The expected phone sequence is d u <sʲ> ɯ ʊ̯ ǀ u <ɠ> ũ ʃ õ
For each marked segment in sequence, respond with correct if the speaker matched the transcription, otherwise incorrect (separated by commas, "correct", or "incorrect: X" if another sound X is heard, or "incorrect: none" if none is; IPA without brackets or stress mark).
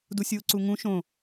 correct, incorrect: ŋ